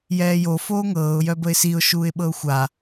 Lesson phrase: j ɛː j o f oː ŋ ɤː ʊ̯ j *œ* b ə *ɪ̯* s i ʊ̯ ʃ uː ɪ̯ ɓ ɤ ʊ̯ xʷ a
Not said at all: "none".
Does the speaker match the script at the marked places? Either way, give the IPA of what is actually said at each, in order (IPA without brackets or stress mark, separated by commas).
œ, ɪ̯